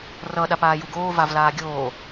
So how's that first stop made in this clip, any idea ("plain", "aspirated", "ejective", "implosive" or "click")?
implosive